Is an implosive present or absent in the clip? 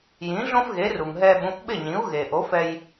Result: present